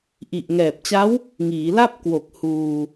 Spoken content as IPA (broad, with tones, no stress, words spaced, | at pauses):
ʔi˨˩ʔŋɛː˨˩p̚t͡ɕa˦˥w | ŋiː˩˦la˥˩p̚ kwo˨˩k̚ huː˧